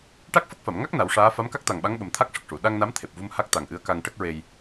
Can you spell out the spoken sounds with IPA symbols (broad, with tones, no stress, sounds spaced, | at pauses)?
ʈ a˦˥ k̚ f ə˦˥ k̚ f a˨˩˨ m ŋ a˦˥ k̚ n a˨˩˦ w ʂ aː˧˥ f a˧˥ m k a˦˥ k̚ t̪ a˨˩ ŋ ɓ a˧˥ ŋ ɓ ə˨˩ m t̪ʰ a˦˥ k̚ ʂ ə˨˩ k̚ ʂ u˨˩˨ ɗ a˧ ŋ n a˧˥ m t̪ʰ e˨˩ p̚ v u˧ m h a˦˥ k̚ t̪ a˨˩ ŋ ʔ ɨ˧˥ ə̯ k a˧ ŋ ʈ ə˦˥ k̚ ɹ e˧ j